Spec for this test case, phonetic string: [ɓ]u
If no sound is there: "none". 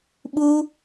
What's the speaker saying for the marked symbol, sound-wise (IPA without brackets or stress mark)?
ɓ